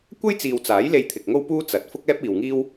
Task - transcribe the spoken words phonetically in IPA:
kʷ ɐ˥ j t͡s iː˨ w t͡s aː˨˥ j l e˧ j t̪ʰ ɪ˨ k̚ ŋ o˥ w p uː˥ t͡s ɐ˨ t̚ f ʊ˥ k̚ ɛː˥ p̚ iː˨ w ŋ iː˥ w

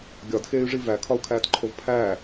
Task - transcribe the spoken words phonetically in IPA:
ɡʲ ɒ d x eː y̯ ʐ i v æ kʰ ɒ u̯ kʰ æː t ǃʰ o v pʰ æ

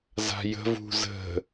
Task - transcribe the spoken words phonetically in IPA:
z a̤ j ə̤ v ṳ z ə̤

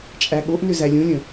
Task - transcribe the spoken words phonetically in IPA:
t͡ʃʼ æ ɠ o ʔ n ʏ z æ lʲ ũ lʲ ə̃

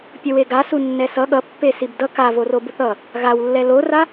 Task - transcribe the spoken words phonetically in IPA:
pʲ ʌ w e ɡ a s u nː ɛ s ʌ ɠ ʌ pː e s i b d ʌ k a v o r o b u θ ʌ | ɣ a w lː ɛ l o r a

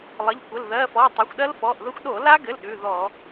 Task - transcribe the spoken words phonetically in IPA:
lˠ ə˩˧˩ ʎ kʷ ə˩˧˩ l ð ɜ˩˧˩ f ɔ˩˧˩ tˤ ɛ˩˧˩ xʷ ɗ ɜ˦˥ l f ɔ˩˧˩ ʔ ð ə˦˥ xʷ ɗ o˧˩˧ l a˦˥ ɡ ɘ˩˧˩ l ɗ ʉ˩˧˩ ð ɔ˧˩˧

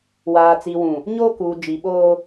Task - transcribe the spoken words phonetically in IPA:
w aː˨ t͡s i˨ w ũ˨ | ɲ oː˦ k uː˨ d͡ʒ i˨ ɓ oː˦

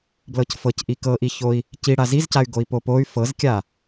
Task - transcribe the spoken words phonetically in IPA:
b l ɤ c f ɤ c ʔ i k ɤ ʔ i ç o i̯ | c i ɽ a z i z c a y̯ ɡ o i̯ p o p o y̯ f ɤ z kʲ a

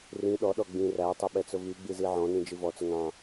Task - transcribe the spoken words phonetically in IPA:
r ĩ ɗ ɔ ɗ ɔ ɡ͡b ĩ r æ tˤ ʊ ɓ ɛ t͡s ʊ v i ɡ͡b i z i ʕ ɔ̃ n ĩ d͡ʒ i v ɔ t͡s ʊ ŋ ɑ̃

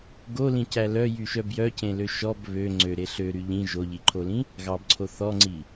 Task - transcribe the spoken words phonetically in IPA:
ɡ o l ĩ c æ l œ j y ʃ œ b j œ c ẽ l ø ʃ ɔ b β ø ŋ͡ǀ ø ɾ e ɬ ø ɾ y ʎ ĩ ʒ o ʎ i ǃʰ o l ĩ | ɣ ɑ b ǀʰ o θ ɔ ŋ͡ǀ i

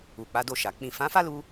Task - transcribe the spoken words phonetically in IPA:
u˨ k͡p a˨˦ d o˦˨ ʃ a˨ k͡p ĩ˨ f ã˨˦ f a˦ l u˧

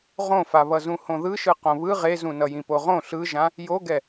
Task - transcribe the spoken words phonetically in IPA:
ʁ õ f a β ʌ z ũ h õ ð ɯ ʃ ɯ q õ β ɯ ʁ e z ũ n ʌ j ĩ p o ʁ õ ɬ ɯ ʒ ã | j o ɡ ɛ

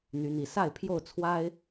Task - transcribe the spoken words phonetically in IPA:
n̪ y˨˦ n̪ i˨˩ s a˥˨ ɪ̯ pʰ j o˥˨ ʊ̯ t͡sʰ w a˦ ɪ̯

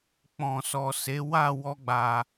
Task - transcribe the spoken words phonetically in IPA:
k͡p ɔ̃˨ s ɔ˨ s e˨˦ w a˦˨ w ɔ˧ ɡ͡b a˨

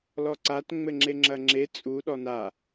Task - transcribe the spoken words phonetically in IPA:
l ɔ ǀ a t ŋ͡m ɘ ŋ͡ǁ e ŋ͡ǁ ɐ ŋ͡ǁ e t͡sʼ u ɗ ɔ n a

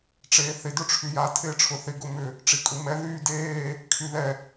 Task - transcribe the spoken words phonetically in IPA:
ʈ͡ʂ eː θ ɪ d ʊ ʈ͡ʂʰ y j a tʰ ɪː ʈ͡ʂʰ ʊ θ ɪ ɡ ʊ m ʏ | ʈ͡ʂ i kʼ u m ɛ ð yː d eː | kʰ y ð ɛ

